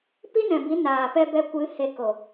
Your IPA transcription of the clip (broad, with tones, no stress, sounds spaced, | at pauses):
p i˦ n ɛ̃˨ b i˨˦ n aː˨ p ɛ˧ b ɛ˧ kʷ ɨ˨˦ h e˨ k o˨